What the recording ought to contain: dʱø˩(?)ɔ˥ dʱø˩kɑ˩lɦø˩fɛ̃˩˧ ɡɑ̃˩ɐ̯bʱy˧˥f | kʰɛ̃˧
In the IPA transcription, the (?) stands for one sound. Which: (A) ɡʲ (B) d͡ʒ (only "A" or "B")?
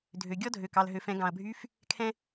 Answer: A